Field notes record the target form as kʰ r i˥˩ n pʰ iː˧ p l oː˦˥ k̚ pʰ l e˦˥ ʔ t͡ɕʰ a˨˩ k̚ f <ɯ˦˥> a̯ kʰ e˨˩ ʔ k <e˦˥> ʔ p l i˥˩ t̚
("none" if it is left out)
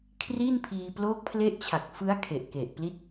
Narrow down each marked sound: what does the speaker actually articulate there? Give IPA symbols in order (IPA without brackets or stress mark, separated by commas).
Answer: ɯ˦˥, e˨˩